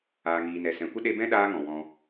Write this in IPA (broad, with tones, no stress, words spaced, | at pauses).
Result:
aː˨ŋiː˨nɛ˨ sɛ̃˨kʷə˦ ɗe˧bɛ̃˦ ɗaː˧ ŋɔ̃˨ wɔ̃˧